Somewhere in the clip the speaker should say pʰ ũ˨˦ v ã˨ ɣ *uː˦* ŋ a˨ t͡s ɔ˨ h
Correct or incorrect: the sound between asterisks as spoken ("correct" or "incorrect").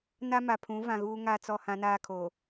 correct